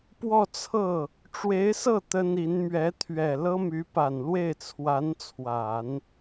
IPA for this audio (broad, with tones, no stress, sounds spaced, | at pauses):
p w ɔ˥˧ t͡sʰ ɤ˥˩ | ʈ͡ʂ w e˧˥ ɪ̯ s ɤ˥˩ t̪ ə˥ n i˧˥ n m ɥ ɛ˧˥ t̪ʰ ɥ ɛ˨˩ l ɤ˥ m y˧˥ p a˨˩ n l w e˥˩ ɪ̯ t͡sʰ w a˧˥ n t͡sʰ w a˨˩˦ n